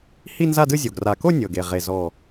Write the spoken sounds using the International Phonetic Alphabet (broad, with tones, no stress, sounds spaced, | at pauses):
h i˥˧ n z a˥˧ d ɯ˥˧ zʲ o˨˩ ɡ r a˨˩ k o˥˧ nʲ ɤ˨˩ ɡ e˨˩ ʁ e˨˩ z ɔ˨˩